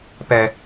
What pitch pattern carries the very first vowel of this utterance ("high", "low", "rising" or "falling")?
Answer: low